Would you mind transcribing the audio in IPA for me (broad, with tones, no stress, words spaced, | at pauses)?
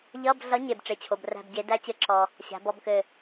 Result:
ʎʌ˧˥˧b ɮʌ˨˥ ɲe˨b ʈ͡ʂe˨t͡ɕʰo˨bræ̤˦˨bɟe˨˥ dæ˦˥t͡ɕɘ˨˥ǁɔ˨ | ɕæ̤˨˥bɔ˧˥˧bkɘ˦˨